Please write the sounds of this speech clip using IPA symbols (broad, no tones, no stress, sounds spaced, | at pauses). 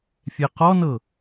fʲ ɛ q ɔ n ɤ